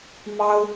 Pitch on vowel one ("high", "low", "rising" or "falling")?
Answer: high